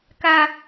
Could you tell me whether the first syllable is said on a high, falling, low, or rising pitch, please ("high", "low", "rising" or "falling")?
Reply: high